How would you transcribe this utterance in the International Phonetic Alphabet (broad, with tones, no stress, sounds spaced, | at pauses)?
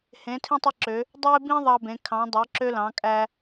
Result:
h ẽ˨˦ tʰ ĩ˦ tˤ i˦ ǁ ø˨˦ | dˤ e˦ b ĩ˦ ðˤ ɑ˦ b ẽ˨˦ kʰ ɑ̃˨˦ dˤ ø˨˦ ǁ ø˦ l ɑ̃˨˦ kʼ æ˦